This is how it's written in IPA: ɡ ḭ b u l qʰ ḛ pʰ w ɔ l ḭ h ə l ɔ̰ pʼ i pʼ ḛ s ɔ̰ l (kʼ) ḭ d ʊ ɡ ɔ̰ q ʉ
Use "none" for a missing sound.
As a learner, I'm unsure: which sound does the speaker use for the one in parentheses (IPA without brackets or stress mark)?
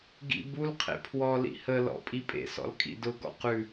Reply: kʼ